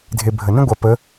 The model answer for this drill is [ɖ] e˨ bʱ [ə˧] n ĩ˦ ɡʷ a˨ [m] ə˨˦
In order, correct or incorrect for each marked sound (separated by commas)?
incorrect, incorrect, incorrect